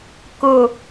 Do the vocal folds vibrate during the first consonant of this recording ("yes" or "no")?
no